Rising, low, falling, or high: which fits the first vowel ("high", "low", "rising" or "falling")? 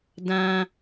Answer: high